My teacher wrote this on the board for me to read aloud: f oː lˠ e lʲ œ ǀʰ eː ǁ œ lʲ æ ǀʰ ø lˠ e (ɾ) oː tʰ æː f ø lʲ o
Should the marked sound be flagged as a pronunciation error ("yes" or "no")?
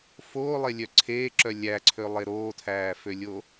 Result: no